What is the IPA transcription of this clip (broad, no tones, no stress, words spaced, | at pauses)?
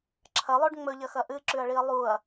ǁʰɐlˠoɖ ŋ͡mɵʎɐxɐ ʔɨǁʉɐ̯ɭiɐ̯ lˠuɐ̯